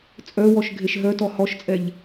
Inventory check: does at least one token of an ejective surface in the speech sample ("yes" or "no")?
yes